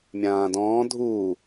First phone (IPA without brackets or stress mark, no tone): mʲ